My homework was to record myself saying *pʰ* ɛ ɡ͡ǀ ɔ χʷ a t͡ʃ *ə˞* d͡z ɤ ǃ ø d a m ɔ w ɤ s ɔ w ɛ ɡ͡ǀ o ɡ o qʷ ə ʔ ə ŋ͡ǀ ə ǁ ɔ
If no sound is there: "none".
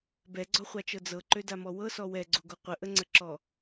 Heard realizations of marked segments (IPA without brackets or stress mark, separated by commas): b, ɤ